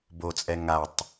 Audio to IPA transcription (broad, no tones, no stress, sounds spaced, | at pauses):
b o t͡sʼ ɛ ŋ a tˤ